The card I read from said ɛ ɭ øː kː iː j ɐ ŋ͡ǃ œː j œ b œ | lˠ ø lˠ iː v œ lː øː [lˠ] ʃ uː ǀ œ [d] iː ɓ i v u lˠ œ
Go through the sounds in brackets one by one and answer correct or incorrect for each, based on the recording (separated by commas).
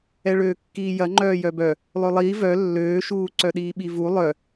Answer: incorrect, incorrect